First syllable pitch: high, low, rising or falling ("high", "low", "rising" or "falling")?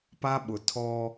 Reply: high